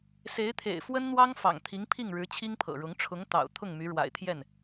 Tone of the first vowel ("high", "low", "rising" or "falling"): rising